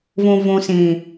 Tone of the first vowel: low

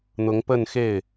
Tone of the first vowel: rising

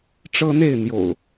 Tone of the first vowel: high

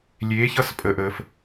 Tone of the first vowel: rising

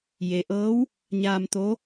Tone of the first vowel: low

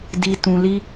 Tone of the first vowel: high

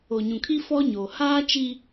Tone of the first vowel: low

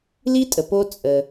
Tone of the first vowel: high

